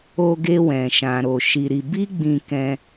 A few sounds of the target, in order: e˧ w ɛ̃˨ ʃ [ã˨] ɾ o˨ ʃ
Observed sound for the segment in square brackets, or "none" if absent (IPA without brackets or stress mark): ã˨